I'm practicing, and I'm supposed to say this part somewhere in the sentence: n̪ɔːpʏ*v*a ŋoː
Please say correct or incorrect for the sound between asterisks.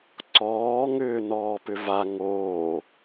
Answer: correct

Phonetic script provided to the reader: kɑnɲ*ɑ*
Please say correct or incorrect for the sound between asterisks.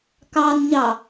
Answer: correct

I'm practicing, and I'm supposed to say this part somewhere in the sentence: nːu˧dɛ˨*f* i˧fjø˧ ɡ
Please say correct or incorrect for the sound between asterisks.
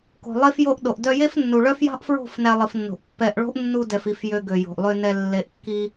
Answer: correct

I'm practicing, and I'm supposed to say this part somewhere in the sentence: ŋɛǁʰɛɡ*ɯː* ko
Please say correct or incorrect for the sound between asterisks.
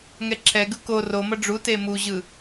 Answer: incorrect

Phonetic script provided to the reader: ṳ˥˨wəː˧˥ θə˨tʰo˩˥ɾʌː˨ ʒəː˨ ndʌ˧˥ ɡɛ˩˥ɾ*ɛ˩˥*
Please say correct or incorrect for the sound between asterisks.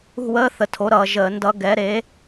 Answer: incorrect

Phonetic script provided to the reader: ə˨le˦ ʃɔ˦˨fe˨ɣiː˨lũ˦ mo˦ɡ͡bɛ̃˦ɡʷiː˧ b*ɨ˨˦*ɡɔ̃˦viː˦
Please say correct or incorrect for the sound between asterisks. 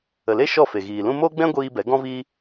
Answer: incorrect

